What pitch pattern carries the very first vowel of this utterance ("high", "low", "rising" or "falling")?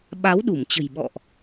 rising